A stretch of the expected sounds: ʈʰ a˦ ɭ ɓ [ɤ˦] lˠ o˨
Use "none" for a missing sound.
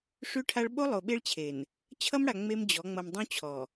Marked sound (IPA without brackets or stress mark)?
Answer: o˦